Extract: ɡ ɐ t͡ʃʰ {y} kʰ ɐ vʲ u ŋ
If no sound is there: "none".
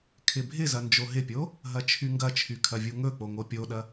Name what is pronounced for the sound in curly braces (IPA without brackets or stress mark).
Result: y